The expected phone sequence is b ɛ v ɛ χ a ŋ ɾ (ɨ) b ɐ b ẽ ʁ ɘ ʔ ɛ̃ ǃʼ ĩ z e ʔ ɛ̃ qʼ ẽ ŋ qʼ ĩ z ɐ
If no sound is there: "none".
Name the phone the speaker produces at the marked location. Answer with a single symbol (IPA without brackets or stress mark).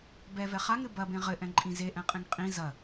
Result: ɨ